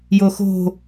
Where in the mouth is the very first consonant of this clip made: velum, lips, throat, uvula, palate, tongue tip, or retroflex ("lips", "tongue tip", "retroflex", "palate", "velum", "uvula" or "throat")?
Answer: palate